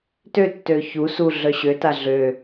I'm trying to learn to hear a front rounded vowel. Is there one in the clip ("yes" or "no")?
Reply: yes